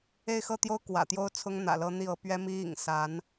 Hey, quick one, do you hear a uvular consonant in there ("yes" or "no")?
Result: no